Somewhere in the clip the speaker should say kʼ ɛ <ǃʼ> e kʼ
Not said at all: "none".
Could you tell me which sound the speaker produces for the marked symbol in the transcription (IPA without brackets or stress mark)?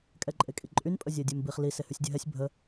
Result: ǃʼ